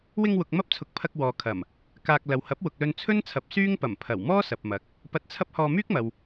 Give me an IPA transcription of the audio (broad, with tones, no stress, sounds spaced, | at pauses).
w ɪ˧ ŋ w ʊ˨ k̚ m ɐ˥ p̚ t͡sʰ ʊ˨˥ k̚ pʰ ɐ˧ k̚ w ɔː˨ kʰ ɐ˨˩ m | k aː˧ k̚ l ɐ˨ w h ɐ˨˥ p̚ w ʊ˨ k̚ l ɵ˧ n t͡sʰ ɵ˥ n t͡sʰ ɐ˨˥ p̚ s yː˥ ŋ p ɐ˨˩ m pʰ ɐ˨˩ w m ɔː˥ s ɐ˨ p̚ m ɐ˨˥ k̚ | p ɐ˧ t̚ t͡sʰ ɐ˥ p̚ h ɔː˧ m yː˥ k̚ m ɐ˨ w